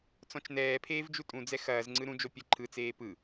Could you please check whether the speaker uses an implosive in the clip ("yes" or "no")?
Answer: no